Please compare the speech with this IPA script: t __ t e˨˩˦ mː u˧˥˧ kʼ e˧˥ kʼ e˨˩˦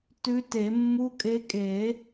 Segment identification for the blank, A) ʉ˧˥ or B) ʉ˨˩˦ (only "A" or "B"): A